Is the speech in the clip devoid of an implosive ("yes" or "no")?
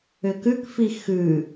yes